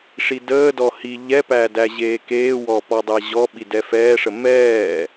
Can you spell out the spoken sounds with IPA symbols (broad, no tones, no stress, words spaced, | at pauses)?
ʂidəːdɔ hi ʎɛpæ dæʑeːkeːwɔ pɔdˤɛʑɔɓi dɛfɛːʂə mɛː